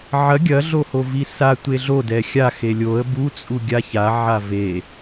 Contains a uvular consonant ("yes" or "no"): no